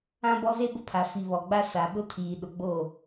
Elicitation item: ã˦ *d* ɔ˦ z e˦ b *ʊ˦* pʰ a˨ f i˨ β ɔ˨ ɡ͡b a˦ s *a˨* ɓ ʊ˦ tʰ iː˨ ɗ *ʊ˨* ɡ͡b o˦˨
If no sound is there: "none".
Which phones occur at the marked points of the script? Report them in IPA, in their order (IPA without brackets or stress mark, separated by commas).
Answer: b, ʊ˦, a˨, ʊ˨